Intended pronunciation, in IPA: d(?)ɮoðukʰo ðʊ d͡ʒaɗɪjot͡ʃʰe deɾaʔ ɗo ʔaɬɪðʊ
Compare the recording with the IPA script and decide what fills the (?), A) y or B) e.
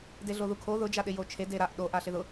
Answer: B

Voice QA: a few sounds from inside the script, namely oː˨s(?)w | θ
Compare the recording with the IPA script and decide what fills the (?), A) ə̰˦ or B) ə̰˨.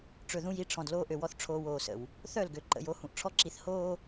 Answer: B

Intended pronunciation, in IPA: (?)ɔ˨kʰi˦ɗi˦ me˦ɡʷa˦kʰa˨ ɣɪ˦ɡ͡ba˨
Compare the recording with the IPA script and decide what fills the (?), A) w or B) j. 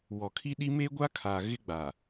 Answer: A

